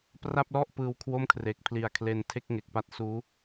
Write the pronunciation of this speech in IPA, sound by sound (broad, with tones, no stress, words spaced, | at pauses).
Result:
pra˥˩p̚lɔ˥˩ʔ pɯː˧wkʰwo˥˩mkʰre˨˩k̚ pʰli˨˩a̯kʰle˧ntʰe˥˩k̚ ŋe˨˩k̚pa˥˩t̚suː˦˥